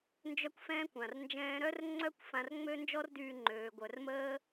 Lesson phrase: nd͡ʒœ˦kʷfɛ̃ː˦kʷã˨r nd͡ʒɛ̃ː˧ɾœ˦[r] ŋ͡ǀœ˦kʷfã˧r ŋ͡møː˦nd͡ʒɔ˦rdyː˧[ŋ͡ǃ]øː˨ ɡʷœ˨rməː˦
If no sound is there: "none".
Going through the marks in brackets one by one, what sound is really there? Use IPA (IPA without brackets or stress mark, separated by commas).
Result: r, ŋ͡ǃ